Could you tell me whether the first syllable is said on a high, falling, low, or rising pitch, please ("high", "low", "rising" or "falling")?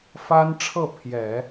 high